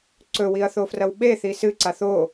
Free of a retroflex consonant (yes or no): yes